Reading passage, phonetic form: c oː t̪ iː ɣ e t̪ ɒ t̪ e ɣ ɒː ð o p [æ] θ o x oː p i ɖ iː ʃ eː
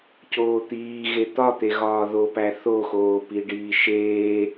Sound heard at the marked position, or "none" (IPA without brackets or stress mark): æ